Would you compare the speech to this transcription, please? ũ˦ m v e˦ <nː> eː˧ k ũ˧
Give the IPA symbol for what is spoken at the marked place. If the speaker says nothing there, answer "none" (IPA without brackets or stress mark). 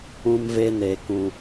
n